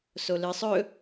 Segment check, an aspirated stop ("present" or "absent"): absent